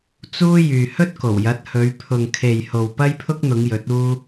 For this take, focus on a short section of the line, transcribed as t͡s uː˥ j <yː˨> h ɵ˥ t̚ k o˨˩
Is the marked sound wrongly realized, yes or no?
no